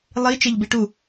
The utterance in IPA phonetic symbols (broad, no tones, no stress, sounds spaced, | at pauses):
lˠ i t͡ʃ e ʎ b i ʈ u